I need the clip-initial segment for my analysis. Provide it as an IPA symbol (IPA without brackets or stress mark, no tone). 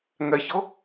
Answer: ŋ